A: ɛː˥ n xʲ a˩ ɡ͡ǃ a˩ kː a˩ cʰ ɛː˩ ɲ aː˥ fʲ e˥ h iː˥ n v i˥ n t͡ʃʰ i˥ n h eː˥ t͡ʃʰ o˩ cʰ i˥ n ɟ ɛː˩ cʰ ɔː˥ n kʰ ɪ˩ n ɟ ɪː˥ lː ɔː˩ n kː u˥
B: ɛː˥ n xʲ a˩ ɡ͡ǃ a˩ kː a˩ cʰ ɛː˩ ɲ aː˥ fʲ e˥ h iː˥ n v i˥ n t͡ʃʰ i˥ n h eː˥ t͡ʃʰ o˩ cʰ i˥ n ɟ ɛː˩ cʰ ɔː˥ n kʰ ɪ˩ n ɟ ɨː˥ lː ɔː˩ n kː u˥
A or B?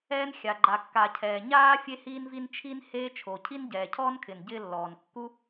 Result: A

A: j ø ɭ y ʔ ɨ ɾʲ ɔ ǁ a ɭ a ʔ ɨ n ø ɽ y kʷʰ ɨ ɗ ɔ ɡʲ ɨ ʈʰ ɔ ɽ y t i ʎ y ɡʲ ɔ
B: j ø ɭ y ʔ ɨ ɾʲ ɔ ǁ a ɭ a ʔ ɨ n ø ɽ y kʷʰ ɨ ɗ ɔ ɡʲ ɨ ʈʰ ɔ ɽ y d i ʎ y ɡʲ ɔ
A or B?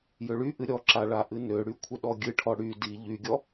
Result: B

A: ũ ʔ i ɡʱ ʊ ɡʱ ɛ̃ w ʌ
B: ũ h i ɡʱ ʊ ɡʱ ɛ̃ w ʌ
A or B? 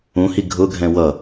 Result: B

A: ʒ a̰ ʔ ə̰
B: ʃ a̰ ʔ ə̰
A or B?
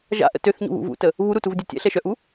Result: A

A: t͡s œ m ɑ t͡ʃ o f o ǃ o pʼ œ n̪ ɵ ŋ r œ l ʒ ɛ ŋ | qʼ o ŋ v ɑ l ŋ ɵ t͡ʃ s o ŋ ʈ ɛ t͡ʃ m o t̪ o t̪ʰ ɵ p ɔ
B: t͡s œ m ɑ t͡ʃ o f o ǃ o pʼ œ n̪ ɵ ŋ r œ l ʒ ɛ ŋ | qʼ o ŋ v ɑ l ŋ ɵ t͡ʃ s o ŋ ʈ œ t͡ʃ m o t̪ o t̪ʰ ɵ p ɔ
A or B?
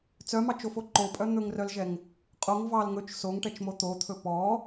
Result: A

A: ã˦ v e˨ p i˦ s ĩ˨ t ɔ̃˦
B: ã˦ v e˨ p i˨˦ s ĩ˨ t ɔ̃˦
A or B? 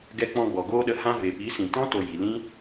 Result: B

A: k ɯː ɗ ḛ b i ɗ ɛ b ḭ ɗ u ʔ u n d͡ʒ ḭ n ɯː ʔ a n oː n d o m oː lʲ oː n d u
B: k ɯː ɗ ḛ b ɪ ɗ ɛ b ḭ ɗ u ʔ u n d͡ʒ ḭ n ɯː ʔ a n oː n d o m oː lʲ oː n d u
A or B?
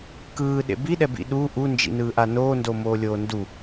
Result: A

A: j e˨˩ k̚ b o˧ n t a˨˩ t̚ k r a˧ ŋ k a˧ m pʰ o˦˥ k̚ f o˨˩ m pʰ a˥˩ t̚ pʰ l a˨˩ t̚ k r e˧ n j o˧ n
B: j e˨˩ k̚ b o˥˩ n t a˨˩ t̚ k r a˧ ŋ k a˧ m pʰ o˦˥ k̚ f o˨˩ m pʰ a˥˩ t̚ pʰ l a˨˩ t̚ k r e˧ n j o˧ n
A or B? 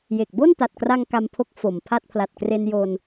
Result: B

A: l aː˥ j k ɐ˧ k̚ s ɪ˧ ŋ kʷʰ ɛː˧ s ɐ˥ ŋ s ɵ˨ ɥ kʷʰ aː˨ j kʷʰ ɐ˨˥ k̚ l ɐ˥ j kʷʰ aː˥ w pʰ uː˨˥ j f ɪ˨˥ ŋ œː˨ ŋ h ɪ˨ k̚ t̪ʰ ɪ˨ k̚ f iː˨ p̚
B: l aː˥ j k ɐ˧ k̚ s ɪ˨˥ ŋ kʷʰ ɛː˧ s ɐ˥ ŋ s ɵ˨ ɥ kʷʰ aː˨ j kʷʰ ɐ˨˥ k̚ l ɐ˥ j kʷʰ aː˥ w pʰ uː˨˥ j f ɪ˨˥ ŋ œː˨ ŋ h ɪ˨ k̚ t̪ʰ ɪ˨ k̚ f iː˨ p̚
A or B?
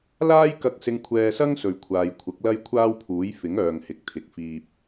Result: A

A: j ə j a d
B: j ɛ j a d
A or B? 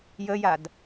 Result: A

